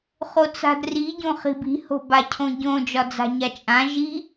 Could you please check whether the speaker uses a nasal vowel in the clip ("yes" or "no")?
yes